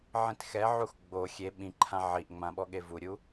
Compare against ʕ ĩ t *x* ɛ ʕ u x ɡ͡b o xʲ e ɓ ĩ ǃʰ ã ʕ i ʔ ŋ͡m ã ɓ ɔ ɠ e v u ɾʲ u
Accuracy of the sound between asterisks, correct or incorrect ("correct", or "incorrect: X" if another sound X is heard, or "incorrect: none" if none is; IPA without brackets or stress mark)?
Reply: correct